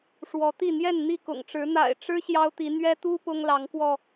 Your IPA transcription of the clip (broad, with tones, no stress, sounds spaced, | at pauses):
ʂ w ɔ˨˦ t̪ i˥˨ n̪ j ɛ˥˨ n n̪ i˥˨ k ʊ̰˨˩ ŋ ʈ͡ʂ ɻ̩˨˦ n̪ a̰˨˩ ɪ̯ ʈ͡ʂ ɻ̩˦ ɕ j ɑ˦ ʊ̯ t̪ i˨˦ n̪ ɥ ɛ˦ t̪ u˦ p ʊ˦ ŋ l ɑ˨˦ ŋ k w ɔ˧